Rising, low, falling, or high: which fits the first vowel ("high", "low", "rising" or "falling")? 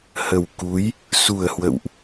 low